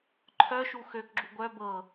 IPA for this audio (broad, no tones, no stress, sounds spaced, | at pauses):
ǃʰ œ ʃ u x ø k ɡ͡ǁ u ɡʷ œ b ɤ